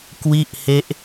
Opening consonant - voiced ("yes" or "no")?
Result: no